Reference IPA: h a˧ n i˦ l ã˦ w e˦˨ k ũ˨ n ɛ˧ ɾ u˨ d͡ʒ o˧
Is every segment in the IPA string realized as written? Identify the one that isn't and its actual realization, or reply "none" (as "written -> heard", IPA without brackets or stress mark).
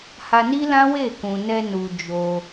ɾ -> n